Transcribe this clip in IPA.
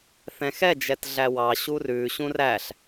θɛ̃xɛ d͡ʒɛtɮæwɑ ɕurʉ ɕũræɬ

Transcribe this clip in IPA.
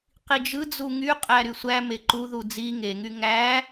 qid͡ʒɯd͡zu ŋyqʼæ ɾysʷæme ǃuðu d͡zi ŋeŋy ŋæ

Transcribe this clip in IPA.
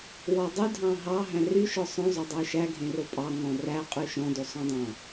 wɔdˤy dʱɑ̃ɦɑ ɦæ̃ry ʃɔsˤœ̃ zˤodˤœʃæ ɡʱẽropʼɑ ŋɔ̃ræ qʼʉʃɔ̃ dosˤœ̃dˤɑ̃

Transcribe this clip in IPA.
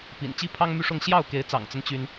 pḭ˨˩n t͡ɕi˥pʰɑ˥ŋmy˥˧ʂʊ˥˧ŋ ɕjɑ˥˩ʊ̯ke˧˥ɪ̯t͡sɑ̰˨˩ŋt͡sə˦n t͡ɕy˥n

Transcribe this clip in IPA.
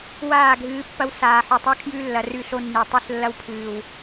waː˦˨ ɡʱɨː˨˦ pːɐ˦w saː˨ħɵ˨tˤa˦ kʰjʉ˦lːɐ˨ rʉ˦˨ɬo˦nːi˨ tˤɨ˦˨ɬlːɐ˦wpʰɨː˨w

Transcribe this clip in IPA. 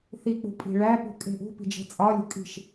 θik͡pṳpʼi̤ ɭæpṳkʼe̤ ʔṳpi̤d͡ʒe̤ t͡sʼɒlʲṳ kʼi̤ʃ

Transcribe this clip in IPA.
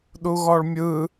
ɗuɣɔɭmʲɯ

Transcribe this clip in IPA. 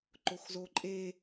ǃoxzoǃʼe

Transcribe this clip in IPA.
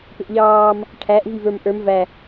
pɪʔʎɑːm | ʈʰæʔ vivə˞mʔə˞m væ

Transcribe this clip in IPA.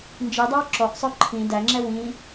nd͡ʒidˤaw ǁɔʔsˤœ ǃʰĩ dæŋ͡ǁɛ wĩ

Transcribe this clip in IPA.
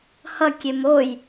hʌkʲem oj

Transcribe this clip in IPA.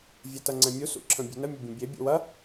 vʲɛtɐŋ͡ǀɛ̃mʲu sṵǁʰə̃bʲe̤nə mʲəbʲɛ̃bʲe bʲṵwɐ

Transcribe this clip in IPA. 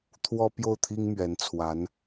t̪ʰwɔ˥ pjo˥˩ʊ̯t̪ʰi˥ŋ mɥɛ˧˥nt͡sʰwa˧˥n

